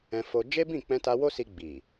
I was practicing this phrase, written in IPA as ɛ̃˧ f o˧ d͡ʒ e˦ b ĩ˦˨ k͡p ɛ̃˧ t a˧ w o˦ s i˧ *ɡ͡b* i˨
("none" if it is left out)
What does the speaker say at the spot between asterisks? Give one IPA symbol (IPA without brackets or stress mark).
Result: ɡ͡b